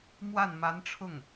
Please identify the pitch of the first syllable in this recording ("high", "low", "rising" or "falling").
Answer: falling